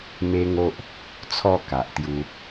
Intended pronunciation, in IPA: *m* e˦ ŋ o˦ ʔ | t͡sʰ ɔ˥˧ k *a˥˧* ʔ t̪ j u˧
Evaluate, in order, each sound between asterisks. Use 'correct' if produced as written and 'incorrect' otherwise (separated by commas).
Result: correct, incorrect